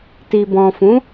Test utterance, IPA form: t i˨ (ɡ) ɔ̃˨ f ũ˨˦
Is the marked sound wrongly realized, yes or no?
yes